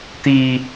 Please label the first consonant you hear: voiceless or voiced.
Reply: voiceless